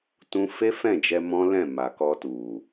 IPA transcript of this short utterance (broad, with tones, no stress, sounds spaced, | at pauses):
t ũ˧ f e˦ f ɛ̃˦˨ d͡ʒ ɛ˧ m ɔ̃˦ l ɛ̃˦˨ m a˨ k ɔ˧ t u˨